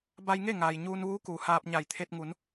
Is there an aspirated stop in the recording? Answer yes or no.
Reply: yes